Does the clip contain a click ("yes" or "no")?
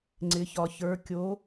yes